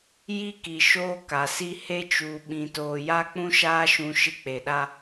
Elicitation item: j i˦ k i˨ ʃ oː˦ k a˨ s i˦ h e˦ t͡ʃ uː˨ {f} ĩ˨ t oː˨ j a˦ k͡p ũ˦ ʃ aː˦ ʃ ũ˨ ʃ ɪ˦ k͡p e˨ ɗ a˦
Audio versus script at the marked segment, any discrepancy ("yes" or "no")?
yes